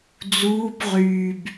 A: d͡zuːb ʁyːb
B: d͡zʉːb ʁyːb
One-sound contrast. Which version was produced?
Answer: A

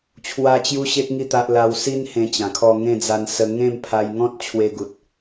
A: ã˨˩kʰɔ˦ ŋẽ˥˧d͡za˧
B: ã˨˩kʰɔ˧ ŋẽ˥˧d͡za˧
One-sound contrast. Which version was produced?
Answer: B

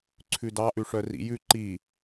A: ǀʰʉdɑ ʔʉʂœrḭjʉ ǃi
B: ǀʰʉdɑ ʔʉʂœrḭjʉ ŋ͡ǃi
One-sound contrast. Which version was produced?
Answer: A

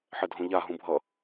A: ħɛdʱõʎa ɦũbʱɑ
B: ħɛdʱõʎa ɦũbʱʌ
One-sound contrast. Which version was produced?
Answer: B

